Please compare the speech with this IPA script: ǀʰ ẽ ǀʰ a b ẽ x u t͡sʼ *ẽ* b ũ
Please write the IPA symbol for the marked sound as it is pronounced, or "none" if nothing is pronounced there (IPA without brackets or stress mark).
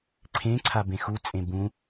ẽ